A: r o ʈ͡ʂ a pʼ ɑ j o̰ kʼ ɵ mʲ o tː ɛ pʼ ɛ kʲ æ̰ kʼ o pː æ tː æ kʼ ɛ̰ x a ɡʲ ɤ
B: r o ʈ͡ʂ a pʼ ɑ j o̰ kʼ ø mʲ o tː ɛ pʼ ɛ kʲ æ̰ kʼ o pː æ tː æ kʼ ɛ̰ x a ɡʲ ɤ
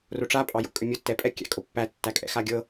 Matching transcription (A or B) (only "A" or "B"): B